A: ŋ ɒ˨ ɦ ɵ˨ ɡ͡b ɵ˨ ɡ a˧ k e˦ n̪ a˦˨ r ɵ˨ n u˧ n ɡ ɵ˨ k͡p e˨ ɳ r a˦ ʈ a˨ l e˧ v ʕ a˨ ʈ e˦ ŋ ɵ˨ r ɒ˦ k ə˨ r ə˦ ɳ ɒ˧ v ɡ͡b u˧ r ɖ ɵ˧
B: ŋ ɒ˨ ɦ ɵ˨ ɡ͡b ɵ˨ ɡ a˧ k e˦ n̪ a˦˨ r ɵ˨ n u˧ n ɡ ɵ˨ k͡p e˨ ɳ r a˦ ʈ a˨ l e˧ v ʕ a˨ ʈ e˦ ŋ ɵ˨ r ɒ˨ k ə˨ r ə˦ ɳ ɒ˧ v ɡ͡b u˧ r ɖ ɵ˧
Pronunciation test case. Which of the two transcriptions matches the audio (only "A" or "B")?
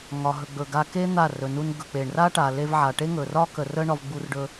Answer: A